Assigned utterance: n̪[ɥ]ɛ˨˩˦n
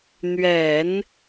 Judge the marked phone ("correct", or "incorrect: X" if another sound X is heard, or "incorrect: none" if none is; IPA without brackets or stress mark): correct